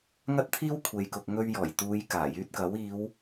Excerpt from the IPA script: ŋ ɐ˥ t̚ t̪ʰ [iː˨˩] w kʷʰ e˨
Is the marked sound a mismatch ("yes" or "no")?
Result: yes